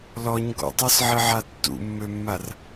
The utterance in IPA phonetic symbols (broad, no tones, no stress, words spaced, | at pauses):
lɔɲ ɡɔ̰tˤɔsʕɪʕa tːṵmːømːar